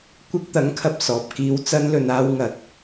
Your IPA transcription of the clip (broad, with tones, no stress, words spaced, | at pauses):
kʷɪ˧k̚t̪ɐ˨˥ŋkʰɐ˨p̚ sɔː˨p̚kiː˧w t͡sɐ˧nlɵ˨naː˧wŋɐ˨˥t̚